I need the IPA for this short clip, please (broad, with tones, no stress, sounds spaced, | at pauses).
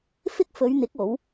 f ɪ˥ k̚ f ɵ˨˧ ɥ n̪ ɪ˨˥ k̚ o˨˥ w